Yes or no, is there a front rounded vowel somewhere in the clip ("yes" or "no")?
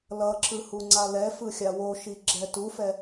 no